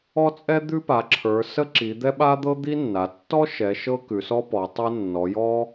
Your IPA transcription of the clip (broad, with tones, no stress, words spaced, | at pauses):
ɔ˥t͡sʼɛ˥ d̪ʉ˥pa˩˧ǁʰə˞˩˧ sə˥ǁi˩˧d̪ɛ˥ ɓa˥d̪ɤ˥d̪i˥nːa˩˧ tːɔ˥ʃɛ˩˧ ʃɤ˥ kʉ˩˧sɔ˥pɔ˩˧tˤa˥ nːɔ˩˧jɔ˥